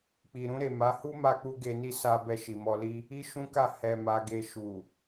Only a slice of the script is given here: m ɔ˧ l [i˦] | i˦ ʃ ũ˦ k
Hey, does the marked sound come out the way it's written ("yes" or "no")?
yes